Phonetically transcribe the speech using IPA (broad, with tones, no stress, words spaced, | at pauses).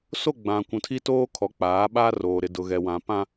so˦˨ɡ͡bã˨ kʷũ˨tʰi˦toː˦kʰɔ˨˦ k͡paː˨˦ɓa˦roː˨ ɾɪ˨dʊ˨ɣɛ˨ wã˨pã˦